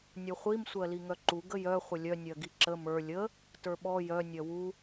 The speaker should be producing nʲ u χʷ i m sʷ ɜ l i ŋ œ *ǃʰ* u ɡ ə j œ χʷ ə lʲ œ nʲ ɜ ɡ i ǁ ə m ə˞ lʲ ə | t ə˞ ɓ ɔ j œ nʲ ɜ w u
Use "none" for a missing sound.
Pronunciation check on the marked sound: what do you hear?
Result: ǃ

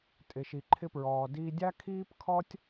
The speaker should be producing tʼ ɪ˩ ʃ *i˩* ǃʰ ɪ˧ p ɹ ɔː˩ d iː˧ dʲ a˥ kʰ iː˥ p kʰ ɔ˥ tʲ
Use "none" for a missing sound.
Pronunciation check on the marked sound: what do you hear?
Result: i˩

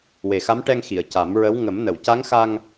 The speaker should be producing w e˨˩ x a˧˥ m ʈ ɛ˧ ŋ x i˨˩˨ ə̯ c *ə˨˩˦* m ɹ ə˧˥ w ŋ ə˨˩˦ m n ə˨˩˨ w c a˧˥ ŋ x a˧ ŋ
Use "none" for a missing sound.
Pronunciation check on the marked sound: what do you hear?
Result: a˨˩˦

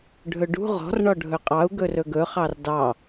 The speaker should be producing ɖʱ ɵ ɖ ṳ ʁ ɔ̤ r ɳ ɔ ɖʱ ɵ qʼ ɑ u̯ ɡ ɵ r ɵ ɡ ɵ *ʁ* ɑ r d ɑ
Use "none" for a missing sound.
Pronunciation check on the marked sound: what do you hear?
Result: χ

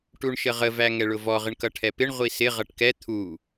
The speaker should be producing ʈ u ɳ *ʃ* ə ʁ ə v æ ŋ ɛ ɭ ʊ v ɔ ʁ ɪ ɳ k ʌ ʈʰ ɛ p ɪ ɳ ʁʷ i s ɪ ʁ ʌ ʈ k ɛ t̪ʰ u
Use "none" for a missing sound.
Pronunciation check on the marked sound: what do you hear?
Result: ʃ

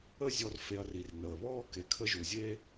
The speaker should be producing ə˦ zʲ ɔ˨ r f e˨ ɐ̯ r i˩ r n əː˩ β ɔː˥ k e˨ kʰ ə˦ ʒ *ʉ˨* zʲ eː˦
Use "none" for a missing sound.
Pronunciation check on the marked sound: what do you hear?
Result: u˨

